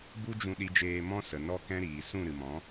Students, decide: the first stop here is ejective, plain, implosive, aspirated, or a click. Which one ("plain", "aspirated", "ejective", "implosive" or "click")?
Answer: plain